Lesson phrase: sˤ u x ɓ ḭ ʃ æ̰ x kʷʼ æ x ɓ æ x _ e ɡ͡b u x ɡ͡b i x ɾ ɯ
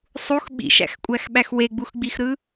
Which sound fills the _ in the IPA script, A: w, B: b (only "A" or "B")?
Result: A